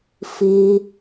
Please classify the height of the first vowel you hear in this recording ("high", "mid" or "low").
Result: high